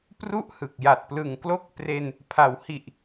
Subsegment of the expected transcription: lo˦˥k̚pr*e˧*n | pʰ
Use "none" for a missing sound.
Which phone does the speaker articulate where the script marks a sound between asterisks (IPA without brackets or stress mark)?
e˧